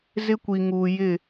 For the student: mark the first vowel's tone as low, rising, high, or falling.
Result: high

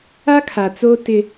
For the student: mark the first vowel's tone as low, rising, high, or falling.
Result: high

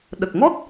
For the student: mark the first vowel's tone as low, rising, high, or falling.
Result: low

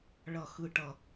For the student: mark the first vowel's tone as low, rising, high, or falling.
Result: falling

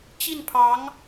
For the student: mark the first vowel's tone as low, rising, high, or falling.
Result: falling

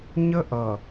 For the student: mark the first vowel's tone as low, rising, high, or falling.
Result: high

